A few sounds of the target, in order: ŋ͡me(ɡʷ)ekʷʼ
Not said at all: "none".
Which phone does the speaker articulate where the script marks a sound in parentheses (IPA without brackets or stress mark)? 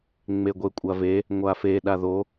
ɡʷ